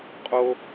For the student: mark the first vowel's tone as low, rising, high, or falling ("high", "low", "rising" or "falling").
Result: high